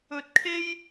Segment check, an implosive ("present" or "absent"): absent